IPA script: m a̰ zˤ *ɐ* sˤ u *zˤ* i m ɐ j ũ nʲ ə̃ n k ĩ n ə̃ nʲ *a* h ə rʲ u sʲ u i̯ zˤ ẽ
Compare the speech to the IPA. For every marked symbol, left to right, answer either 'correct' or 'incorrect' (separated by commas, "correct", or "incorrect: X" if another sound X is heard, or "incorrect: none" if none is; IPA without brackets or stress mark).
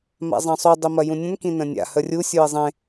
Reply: incorrect: ɐ̃, incorrect: dˤ, incorrect: a̰